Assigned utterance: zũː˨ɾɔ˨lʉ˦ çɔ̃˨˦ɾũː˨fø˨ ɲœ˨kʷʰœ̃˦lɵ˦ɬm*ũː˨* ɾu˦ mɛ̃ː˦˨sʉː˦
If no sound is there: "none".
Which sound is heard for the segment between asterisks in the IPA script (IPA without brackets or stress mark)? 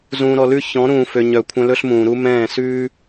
ũː˨